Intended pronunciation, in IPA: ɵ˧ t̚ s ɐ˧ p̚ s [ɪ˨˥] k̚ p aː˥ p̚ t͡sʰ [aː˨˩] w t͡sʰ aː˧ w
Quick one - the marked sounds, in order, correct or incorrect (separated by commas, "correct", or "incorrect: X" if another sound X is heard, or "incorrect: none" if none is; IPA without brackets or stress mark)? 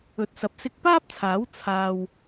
incorrect: ɪ˥, incorrect: aː˨˥